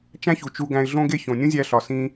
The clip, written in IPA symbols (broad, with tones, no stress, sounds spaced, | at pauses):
t͡ʃ æ̃˥ ç u˩ t͡ʃ u˧ ɡ æ̃˧ ɪ̯ ɮ õ˥ ɡ e˥ ç õ˩ nʲ ũ˥ zʲ æ˧ ɬ ɒ˩ s ĩ˧